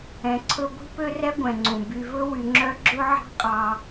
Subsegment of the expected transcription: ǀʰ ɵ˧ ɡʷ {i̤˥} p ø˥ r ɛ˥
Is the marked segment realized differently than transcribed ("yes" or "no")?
no